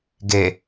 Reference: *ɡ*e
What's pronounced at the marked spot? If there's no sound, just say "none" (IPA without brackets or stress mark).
ɡ